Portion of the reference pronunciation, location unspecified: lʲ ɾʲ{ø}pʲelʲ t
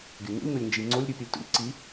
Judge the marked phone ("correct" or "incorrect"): incorrect